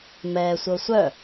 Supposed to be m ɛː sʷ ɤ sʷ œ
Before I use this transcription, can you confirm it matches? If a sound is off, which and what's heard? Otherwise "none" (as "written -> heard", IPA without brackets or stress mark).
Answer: none